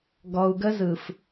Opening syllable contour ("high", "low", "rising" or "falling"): low